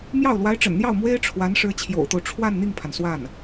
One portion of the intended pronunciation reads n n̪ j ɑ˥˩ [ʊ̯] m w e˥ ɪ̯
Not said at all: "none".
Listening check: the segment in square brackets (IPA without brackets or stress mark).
ʊ̯